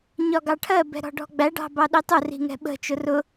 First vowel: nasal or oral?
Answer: oral